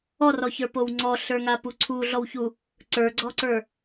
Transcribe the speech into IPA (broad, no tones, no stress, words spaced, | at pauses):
ɔrɔçə˞pow ŋ͡ǀɔɬə˞ŋapu ǀʰuɮɔwçu | ǀə˞ɡ͡ǀɔǀə˞